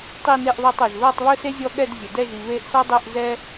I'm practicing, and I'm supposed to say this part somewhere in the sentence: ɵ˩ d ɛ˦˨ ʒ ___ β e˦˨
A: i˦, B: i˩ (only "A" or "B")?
B